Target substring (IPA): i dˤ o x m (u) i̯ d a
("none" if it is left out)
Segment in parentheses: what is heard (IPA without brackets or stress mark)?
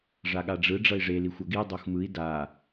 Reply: ɯ